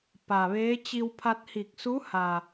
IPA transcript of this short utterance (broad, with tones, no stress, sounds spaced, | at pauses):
p a˩ ʋ eː˧˥ t͡ɕ i˧ w pʰ a˧ t̚ h i˧˩ k̚ s u˧˥ h a˩